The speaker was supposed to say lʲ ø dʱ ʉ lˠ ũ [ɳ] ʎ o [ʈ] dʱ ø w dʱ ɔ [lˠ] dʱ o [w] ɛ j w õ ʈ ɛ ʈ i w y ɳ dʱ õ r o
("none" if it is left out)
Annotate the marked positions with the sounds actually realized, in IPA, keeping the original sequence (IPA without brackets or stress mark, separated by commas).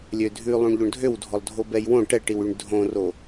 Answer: ɳ, ɳ, lˠ, b